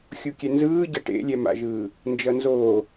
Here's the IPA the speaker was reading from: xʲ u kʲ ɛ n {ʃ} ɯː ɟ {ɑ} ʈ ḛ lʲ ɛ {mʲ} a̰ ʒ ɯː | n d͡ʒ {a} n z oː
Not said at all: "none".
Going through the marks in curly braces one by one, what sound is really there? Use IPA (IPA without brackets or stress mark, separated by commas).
z, ʌ, m, ʌ